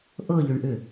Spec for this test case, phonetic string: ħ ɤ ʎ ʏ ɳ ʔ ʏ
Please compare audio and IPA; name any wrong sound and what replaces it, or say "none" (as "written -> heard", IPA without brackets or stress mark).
ħ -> ʔ